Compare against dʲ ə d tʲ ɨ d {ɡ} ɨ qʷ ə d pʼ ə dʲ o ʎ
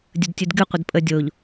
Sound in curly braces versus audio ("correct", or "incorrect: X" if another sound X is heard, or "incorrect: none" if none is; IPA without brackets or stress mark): correct